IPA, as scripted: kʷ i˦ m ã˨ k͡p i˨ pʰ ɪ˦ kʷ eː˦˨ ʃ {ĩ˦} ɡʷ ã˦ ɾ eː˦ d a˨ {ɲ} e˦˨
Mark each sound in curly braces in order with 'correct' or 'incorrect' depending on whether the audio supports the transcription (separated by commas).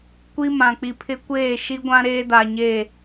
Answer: incorrect, correct